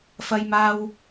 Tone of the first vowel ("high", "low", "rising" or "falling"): high